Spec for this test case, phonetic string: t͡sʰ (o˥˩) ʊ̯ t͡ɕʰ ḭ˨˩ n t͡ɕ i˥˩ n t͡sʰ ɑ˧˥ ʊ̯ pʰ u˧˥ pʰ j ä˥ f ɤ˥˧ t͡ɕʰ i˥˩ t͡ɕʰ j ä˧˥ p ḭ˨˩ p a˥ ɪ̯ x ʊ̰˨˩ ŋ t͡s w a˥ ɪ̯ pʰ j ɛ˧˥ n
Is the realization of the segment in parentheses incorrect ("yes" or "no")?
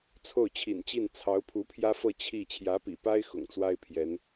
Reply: no